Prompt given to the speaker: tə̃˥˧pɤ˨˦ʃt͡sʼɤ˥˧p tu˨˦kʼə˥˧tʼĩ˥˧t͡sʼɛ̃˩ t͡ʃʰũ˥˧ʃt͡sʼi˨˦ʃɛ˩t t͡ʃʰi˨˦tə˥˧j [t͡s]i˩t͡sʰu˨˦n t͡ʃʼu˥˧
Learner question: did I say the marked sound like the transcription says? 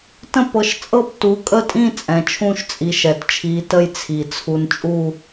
no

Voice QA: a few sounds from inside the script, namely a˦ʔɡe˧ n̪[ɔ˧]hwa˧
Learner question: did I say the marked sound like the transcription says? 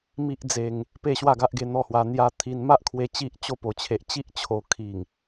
no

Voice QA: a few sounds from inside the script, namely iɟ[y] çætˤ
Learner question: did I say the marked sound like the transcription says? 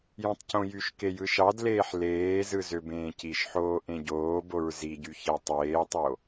yes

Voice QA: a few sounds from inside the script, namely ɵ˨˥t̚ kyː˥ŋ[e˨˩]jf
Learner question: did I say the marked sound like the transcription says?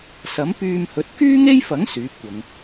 no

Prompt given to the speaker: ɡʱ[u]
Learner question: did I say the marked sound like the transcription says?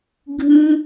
no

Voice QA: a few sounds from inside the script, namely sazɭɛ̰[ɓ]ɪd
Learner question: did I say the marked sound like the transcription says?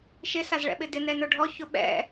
yes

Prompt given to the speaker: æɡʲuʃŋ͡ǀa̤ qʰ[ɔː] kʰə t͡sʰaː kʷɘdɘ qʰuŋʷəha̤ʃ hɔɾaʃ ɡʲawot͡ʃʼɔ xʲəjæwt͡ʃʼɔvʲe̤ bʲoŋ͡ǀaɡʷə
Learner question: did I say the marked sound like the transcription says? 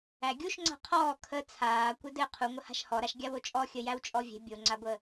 yes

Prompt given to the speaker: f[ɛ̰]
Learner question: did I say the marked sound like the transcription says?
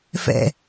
yes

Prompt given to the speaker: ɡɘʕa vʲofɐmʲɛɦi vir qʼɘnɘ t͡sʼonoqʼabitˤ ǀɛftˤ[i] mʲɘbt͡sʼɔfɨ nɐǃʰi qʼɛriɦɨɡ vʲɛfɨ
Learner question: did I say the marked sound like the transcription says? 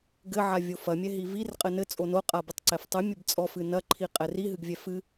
no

